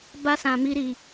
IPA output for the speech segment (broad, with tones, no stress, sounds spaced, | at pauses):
b a˦ s ã˧ m i˦ ɾ i˧